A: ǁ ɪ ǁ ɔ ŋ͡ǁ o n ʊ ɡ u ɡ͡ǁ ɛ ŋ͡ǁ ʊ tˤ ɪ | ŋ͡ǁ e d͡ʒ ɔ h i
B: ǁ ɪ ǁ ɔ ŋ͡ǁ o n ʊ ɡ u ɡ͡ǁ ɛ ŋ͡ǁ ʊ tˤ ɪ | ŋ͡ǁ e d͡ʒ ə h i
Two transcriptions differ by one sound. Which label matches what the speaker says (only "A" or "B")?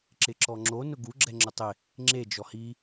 A